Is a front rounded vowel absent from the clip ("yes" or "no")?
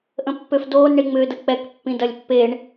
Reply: no